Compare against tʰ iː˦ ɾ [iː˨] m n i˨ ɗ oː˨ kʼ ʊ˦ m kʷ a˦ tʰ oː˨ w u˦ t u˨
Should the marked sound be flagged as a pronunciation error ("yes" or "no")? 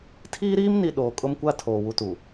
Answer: yes